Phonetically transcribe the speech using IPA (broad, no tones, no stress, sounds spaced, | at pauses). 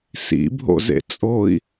s ḭ bʱ o̰ z ḛ t͡sʼ o i̯